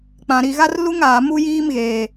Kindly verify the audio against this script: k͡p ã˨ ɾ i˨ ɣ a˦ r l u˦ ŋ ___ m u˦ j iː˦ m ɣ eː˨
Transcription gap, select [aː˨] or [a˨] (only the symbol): aː˨